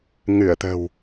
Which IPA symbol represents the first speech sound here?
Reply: ŋ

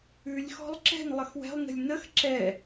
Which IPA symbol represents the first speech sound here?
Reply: ʉ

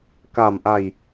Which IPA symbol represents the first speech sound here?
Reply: k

